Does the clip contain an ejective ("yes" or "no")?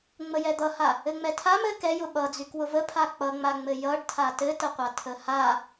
no